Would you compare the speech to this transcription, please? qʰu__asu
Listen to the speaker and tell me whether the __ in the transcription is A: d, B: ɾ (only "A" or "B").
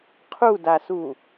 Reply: A